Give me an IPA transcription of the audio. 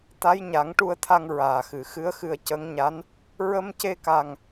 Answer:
t̪ a˧˥ j ɲ a˨˩˦ ŋ ʈ u˧ ə̯ t̪ʰ a˧ ŋ ɹ aː˨˩ x ɨ˨˩˨ x ɨ˧˥ ə̯ x ɨ˧ ə̯ c ə˧˥ ŋ ɲ a˧˥ n | ɹ ə˧ m c e˧ k a˨˩ ŋ

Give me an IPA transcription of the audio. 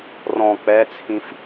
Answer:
r ɔ̃ k͡p ɛ t͡sʰ ĩ f

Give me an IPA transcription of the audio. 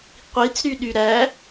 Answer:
qʷ i t͡s ɾ y ɗ y ɾ æ

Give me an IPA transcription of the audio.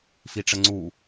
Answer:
f i ʈ͡ʂ ə ŋ͡ǀ u

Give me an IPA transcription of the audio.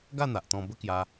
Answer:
ɡ a˥˧ n̪ a˨ ʔ t̪ ɔ̃˧ b ə˦ k j a˧

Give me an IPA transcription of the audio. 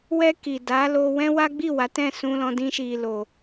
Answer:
w ɛ˧ k i˨ d a˨˦ l o˧ w ɛ̃˦ w a˦ ɡ͡b i˦˨ w a˨˦ t ɛ̃˦˨ s ũ˧ l ɔ̃˧ d ĩ˦ ʃ i˧ l o˧

